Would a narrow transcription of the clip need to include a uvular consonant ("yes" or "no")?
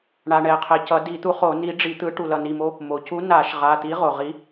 yes